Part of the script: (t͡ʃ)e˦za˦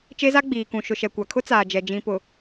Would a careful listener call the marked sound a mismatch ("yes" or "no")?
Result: no